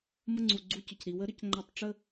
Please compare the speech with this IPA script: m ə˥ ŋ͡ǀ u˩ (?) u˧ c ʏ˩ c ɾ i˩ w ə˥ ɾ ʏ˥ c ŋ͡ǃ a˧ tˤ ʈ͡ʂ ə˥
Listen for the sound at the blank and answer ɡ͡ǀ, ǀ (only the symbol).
ɡ͡ǀ